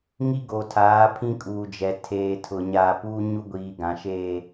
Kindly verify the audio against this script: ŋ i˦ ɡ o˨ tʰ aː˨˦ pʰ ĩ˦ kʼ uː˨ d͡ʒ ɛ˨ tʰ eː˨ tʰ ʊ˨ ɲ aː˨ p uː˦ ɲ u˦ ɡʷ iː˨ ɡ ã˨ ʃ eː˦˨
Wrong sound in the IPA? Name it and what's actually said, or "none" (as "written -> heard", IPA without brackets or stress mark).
none